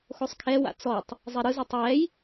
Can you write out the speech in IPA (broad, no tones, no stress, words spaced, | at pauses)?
xosˤkʰɛwa̰ t͡sɔtˤ | zˤeɾɯzotˤ wɛj